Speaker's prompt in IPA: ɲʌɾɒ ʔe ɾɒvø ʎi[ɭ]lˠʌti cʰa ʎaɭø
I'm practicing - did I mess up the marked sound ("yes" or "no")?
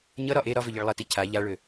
no